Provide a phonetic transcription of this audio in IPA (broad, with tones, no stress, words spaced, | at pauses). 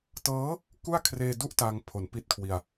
tɤː˦˥ | ku˥˩a̯kʰreː˧du˥˩ʔ ta˧ŋpʰo˩˦n pi˥˩t̚kʰwi˧a̯